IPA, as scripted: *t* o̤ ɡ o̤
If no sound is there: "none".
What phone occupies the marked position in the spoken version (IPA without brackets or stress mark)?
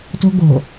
t